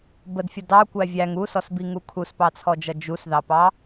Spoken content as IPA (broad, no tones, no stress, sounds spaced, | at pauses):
b ə d fʲ ʌ d ɑ kʷ æ vʲ æ ŋ u s ɔ s b i ŋ u kʰ u s p ɑ t͡sʰ ɔ d͡ʒ ʌ d͡ʒ u s ð ɑ p ɑ